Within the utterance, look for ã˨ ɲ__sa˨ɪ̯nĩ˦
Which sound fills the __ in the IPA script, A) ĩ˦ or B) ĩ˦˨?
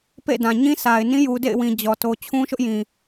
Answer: A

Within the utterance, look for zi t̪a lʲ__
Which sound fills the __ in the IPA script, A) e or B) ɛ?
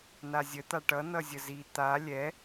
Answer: B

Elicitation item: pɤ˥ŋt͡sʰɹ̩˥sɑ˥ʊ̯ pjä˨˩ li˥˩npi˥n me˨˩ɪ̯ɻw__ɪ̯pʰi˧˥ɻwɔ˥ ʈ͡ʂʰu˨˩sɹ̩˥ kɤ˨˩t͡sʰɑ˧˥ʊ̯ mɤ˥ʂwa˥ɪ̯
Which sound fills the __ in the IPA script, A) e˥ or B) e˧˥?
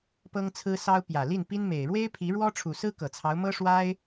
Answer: A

